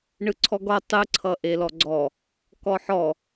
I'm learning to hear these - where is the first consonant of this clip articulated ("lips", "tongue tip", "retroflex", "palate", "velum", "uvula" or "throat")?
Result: retroflex